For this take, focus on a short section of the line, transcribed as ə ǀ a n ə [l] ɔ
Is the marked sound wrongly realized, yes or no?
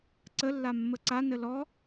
no